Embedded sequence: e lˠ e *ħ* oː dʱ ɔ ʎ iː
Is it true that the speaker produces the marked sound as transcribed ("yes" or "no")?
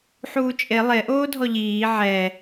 no